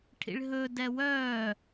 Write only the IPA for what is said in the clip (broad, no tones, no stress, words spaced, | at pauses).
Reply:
ʈʰḭɭɦɵ dɛwœː